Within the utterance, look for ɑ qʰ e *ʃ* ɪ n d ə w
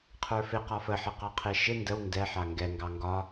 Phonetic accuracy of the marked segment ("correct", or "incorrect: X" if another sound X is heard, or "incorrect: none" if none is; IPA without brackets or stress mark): correct